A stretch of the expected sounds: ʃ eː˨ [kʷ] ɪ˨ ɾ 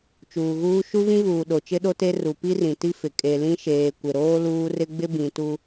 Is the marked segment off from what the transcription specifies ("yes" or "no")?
no